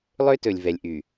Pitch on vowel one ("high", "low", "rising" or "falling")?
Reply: high